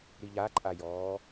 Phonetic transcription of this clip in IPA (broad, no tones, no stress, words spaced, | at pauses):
ɾiʎaǃʼajɔː